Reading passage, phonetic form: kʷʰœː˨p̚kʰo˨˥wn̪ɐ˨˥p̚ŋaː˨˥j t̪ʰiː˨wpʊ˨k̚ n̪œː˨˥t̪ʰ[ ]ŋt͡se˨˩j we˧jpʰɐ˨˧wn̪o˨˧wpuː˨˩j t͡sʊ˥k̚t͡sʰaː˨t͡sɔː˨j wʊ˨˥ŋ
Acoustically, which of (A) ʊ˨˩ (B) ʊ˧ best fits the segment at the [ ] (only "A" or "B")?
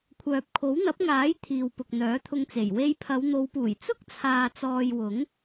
B